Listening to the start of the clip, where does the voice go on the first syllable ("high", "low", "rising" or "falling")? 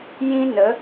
high